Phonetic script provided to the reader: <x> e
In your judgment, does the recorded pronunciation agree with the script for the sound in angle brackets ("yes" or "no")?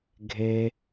no